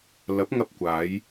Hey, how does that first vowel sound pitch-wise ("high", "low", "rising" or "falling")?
rising